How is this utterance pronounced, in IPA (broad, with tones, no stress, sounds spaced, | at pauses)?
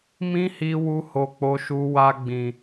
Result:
m ĩ˦ h i˧ w u˧ h o˨ k͡p o˧ ʃ u˧ w a˧ ɡ͡b ĩ˨